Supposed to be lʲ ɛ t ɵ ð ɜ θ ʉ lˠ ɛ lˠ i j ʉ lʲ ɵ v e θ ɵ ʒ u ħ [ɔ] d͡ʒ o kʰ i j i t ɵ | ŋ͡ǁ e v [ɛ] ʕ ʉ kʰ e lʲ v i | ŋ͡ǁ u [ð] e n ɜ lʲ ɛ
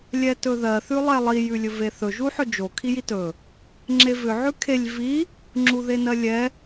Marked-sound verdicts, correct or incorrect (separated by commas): incorrect, incorrect, correct